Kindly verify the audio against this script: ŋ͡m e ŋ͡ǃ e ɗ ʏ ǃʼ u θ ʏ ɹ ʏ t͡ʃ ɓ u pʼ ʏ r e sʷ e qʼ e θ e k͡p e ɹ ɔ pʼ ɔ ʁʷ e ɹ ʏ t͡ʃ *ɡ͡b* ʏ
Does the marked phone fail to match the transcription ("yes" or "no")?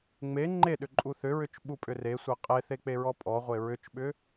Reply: yes